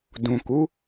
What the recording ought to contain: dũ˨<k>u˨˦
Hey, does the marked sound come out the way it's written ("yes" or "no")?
yes